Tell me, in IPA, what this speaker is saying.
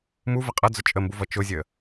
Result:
m u v ə qʼ ʌ d͡z ʊ t͡ʃʼ ə m b u v ʌ t͡ʃ ʊ zʲ ə

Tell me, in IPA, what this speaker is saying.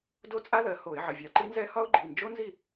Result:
d o˦˥ t͡sʼ a˦˥ ð ɜ˩˧˩ h o˧˩˧ ɪ̯ ʕ ə˩˧˩ vʲ ɑ˧˩˧ ǃ i˦˥ n z ɛ˦˥ h ɒ˦˥ ʊ̯ ɡ͡ǃ i˩˧˩ n d͡ʒ o˦˥ n z i˥˨

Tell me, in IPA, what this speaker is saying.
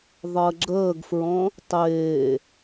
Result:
ðˤ əː ɡ͡ǁ əː ɡ f ɹ ɔ̃ | tˤ eː

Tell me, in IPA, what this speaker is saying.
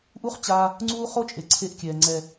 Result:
ʔ u˦ χ t͡ɕ a˧ | ŋ͡ǀ uː˦ χ o˦ t͡ʃʼ e˨ ǀʰ e˧ ʔ kʲ ɛː˨ ŋ͡ǀ ɛ˨

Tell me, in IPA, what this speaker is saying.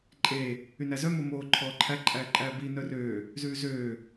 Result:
ǃʼ eː | y n æ z œ m o m oː ǃʰ ɔː ǃʰ æ ǃʼ æː ǃʼ æː b i n œ r øː | z ʉː z øː

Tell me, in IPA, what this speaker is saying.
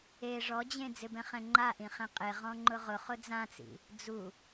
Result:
e ʐ ɔ d͡ʑ ẽ d͡z ɪ b ɛ̃ χ ɛ̃ ŋ͡ǃ a ʔ ĩ χ ẽ qʼ e ʁ ɔ̃ ŋ͡ǃ ʊ ʁ ʊ χ ʊ d͡z ã t͡s ḭ | d͡z u

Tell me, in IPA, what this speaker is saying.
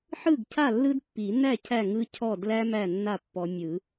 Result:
ħ ɯ˥˩ ɡ cʰ a˥˩ lː ɯ˦ d pː i˨˩˦ n æ˥˩ cʰ æ˥˩ ŋ ɯ˦ cʰ ɔ˥˩ d l æ˦ m æ˥˩ nː a˥˩ pː ɔ˨˦ mʲ ɯ˨˩˦

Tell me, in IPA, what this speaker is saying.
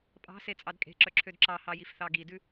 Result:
pʼ ɑ̤ s e t͡sʼ ɑ d kʼ e̤ ǁ œ ǁʰ ø d ǁ ɑ h ɑ j i f θ ɑ ɡ i d ʉ

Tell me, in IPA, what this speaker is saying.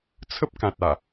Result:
t͡sʰ ə˦ p̚ k ã˨ t̚ a˨˩

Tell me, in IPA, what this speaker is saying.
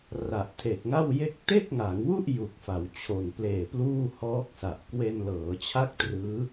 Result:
r a˨˩ ʔ tʰ e˨˩ k̚ ŋ a˥˩ w j e˥˩ k̚ t e˥˩ k̚ ŋ a˩˦ ŋ w u˥˩ ʔ j u˨˩ k̚ f a˩˦ w t͡ɕʰ o˨˩ n p l eː˨˩ p l uː˥˩ h ɔː˦˥ k̚ s a˨˩ ʔ k w e˧ n l ɤː˩˦ t͡ɕʰ a˦˥ k̚ t r ɯː˦˥

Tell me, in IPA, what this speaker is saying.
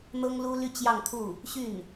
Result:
n̪ ɤ˥ ŋ l u˥ l y˥˧ t͡ɕ j ɑ˥˧ ŋ t̪ʰ u˥˩ | ɕ y˥˩ n

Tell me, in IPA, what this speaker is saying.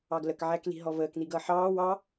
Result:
ɑ ɡ l ə k ʕ æ k l i̤ ɦ ɔ v əː k n̪ i ɡ ʌː ħ ɑː w ɑ

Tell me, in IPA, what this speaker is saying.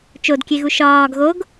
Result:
t͡ʃ o d kʲ e ɣ u ʃ ɒː ɡ ɣ o ɡ

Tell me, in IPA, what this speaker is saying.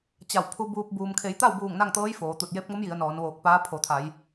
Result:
t͡ɕ a˧˩ w pʰ u˧ b uː˧ p̚ b uː˩ m kʰ e˩˧ j t̪ a˥˨ w b uː˧˩ ŋ n a˥˨ ŋ t̪ ɤː˧˥ j f oː˩˧ t̪ u˧˩ t̚ j e˧˥ p̚ ŋ o˧˥ m j i˩˧ ə̯ n ɔː˩˧ n ʋ oː˧˩ k̚ p aː˧˥ pʰ o˩˧ t̪ʰ a˩˧ j

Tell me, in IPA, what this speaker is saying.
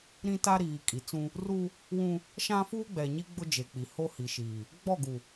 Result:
ɾ ĩ˦ t a˦ ɾ iː˨ kʼ i˨ t͡s ũ˦ | r u˦ | w ũ˦ | ʃ ã˦ f uː˦ ɡ͡b ɛ˨ ɲ i˦ ɡ͡b ʊ˦ d͡ʒ e˨ k͡p i˨ h o˦ h i˨ ʃ iː˨ | ɡ͡b ɔ˦˨ ɡ u˨

